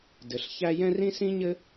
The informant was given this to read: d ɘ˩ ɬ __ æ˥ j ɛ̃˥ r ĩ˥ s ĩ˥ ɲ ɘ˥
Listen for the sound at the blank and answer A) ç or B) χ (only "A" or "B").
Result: A